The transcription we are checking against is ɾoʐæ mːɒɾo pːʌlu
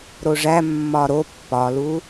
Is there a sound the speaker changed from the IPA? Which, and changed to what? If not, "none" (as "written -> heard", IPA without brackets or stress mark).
ʌ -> ɒ